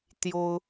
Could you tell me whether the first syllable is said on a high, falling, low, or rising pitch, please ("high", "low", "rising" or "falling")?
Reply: high